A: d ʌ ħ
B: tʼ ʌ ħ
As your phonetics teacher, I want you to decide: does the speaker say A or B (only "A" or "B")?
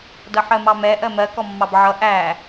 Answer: A